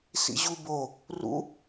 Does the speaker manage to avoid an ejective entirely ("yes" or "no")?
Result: yes